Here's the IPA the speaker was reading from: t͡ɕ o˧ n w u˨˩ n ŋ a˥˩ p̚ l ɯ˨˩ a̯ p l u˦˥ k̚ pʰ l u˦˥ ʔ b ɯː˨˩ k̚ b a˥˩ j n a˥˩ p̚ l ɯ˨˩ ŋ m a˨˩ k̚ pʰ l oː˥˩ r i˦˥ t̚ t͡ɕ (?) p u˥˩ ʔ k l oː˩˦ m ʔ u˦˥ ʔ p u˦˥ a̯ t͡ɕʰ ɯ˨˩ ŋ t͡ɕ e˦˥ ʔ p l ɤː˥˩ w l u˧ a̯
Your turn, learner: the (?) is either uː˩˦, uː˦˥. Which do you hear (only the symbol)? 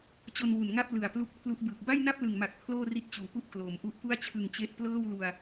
uː˩˦